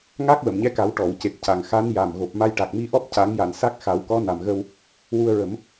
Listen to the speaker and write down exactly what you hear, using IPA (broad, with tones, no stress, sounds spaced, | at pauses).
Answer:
ŋ a˦˥ k̚ w ə˨˩˨ m ɲ ɛ˧˥ k a˨˩˦ w ʈ ɔ˨˩˨ w c e˨˩ p̚ c a˨˩ ŋ x a˧˥ n j a˨˩ m ɣ o˨˩ p̚ m a˧ j ʈ a˨˩ k̚ m i˧ ʔ ɔ˦˥ p̚ c a˨˩˦ ŋ j a˨˩˨ n s a˦˥ k̚ x a˨˩˦ w k ɔ˧˥ n a˨˩ m ɣ ə˧ w | w u˧ ə̯ ɹ ə˨˩˦ m